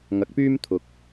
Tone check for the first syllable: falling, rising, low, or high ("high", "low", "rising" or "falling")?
rising